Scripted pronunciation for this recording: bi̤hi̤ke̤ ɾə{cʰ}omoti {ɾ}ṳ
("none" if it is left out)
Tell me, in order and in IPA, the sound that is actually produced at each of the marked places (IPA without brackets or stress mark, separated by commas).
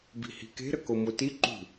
k, ǃ